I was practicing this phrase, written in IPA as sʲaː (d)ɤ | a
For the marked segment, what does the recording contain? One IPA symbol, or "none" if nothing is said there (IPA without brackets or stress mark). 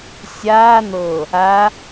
n̪